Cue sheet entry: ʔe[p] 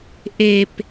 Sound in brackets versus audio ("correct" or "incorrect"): correct